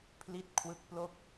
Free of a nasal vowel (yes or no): yes